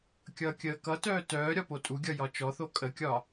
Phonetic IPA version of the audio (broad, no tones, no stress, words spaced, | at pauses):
kʲʌːkʲəːkʌtœː tœː ɾʲɒpotʼuɡʲʌ jɒt͡ʃɔθo kʼəkʲɒ